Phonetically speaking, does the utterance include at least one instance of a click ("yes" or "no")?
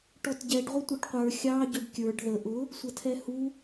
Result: no